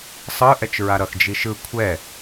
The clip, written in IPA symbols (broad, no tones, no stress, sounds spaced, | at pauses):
sˤ ɯ ʔ ɛ t͡ʃ ɹ a ɾ ʌ x d͡ʒ i ʃ ɯ kʷʰ ɛ